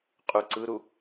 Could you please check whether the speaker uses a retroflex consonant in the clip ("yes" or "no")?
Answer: no